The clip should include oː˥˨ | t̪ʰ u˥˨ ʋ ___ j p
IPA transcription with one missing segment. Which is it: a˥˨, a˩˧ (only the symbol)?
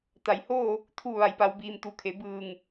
a˩˧